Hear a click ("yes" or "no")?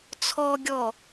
no